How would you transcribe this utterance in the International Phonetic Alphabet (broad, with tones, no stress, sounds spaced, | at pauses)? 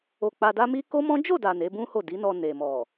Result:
o˧ k͡p a˧ d a˦ m i˦ k o˦ m ɔ̃˦ d͡ʒ o˦˨ d a˨ n e˨˦ b ũ˦ h o˦˨ d i˨˦ n ɔ˧ n e˨ m ɔ˨